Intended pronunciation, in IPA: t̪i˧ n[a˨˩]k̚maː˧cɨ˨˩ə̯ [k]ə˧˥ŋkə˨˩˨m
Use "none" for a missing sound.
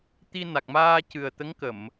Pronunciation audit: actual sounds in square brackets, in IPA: a˨˩, t̪

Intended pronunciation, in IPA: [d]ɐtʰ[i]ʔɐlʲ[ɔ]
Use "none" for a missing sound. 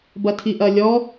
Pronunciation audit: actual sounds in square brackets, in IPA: b, i, ɔ

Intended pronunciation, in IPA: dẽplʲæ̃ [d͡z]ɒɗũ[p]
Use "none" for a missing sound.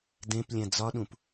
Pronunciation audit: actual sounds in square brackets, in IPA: d͡z, p

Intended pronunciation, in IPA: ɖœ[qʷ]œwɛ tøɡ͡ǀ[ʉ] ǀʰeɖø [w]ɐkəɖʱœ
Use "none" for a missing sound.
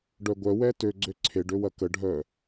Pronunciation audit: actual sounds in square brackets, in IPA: ɡʷ, ø, w

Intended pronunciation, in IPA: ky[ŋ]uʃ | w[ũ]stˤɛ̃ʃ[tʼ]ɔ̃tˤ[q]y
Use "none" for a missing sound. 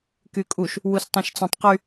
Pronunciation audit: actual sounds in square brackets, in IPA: kʼ, u, t͡s, q

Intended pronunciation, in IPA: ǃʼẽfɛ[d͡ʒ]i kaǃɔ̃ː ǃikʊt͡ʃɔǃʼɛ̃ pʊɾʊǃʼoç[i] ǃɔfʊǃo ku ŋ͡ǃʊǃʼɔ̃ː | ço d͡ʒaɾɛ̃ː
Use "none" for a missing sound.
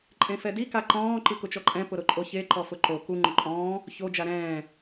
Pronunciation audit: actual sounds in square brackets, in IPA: d, e

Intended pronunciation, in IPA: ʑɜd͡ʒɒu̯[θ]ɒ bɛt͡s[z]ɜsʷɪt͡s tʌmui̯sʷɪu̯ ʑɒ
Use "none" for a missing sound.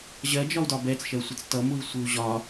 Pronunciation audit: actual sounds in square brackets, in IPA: d, ʃ

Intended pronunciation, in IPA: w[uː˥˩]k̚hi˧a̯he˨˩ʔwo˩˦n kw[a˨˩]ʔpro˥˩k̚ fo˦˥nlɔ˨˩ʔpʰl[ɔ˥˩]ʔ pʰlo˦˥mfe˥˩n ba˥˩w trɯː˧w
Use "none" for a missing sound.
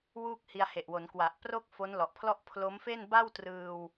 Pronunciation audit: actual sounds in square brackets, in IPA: uː˥˩, a˨˩, ɔ˥˩

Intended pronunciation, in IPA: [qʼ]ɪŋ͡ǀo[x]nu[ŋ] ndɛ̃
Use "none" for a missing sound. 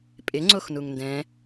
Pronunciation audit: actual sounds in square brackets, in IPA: pʼ, x, ŋ

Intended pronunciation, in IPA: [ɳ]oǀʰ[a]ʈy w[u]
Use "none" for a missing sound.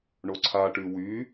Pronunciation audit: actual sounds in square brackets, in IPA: ɳ, a, y

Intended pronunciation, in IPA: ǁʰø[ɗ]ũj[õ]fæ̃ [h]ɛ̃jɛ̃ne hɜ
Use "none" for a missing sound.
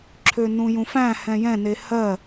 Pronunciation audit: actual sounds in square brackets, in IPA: n, ũ, h

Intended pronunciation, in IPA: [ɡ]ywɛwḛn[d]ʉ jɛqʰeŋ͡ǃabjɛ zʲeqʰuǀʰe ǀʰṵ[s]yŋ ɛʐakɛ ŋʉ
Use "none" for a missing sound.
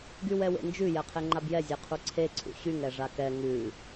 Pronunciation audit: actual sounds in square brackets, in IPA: ɡ, d͡ʒ, ɕ

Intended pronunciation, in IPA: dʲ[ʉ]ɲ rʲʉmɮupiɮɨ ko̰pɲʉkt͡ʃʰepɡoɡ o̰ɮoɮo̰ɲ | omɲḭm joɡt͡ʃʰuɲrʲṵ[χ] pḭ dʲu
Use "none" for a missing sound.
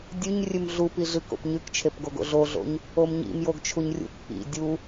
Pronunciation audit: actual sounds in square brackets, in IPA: ʉ, k

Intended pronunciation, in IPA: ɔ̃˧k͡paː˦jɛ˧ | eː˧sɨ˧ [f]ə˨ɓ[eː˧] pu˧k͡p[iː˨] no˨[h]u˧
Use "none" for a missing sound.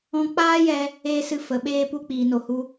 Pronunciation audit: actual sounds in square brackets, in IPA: f, eː˧, iː˨, h

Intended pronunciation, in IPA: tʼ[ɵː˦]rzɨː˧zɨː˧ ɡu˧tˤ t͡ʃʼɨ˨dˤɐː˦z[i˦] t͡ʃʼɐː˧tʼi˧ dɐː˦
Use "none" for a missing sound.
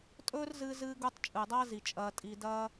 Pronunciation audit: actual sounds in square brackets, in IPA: ɵː˦, i˨

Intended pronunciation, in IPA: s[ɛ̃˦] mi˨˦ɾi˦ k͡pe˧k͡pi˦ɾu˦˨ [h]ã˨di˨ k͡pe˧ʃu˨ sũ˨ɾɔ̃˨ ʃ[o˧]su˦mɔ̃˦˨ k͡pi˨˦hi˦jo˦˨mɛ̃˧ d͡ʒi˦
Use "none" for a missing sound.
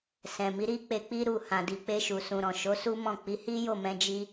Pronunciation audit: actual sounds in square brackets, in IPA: ɛ̃˨, h, o˨˦

